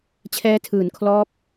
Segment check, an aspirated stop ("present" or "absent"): present